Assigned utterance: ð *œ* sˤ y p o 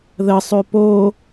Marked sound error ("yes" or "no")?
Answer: yes